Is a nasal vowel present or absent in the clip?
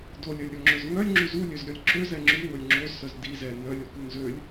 absent